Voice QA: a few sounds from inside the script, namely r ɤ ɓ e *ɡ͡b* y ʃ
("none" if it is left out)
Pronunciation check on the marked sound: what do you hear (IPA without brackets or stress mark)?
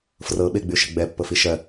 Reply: ɡ͡b